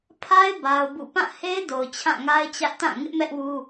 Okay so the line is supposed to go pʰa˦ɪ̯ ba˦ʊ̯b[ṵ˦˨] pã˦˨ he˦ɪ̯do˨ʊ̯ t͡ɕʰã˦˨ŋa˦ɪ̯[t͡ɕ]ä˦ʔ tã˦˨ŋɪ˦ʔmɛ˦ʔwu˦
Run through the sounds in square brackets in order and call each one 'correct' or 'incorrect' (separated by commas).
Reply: correct, correct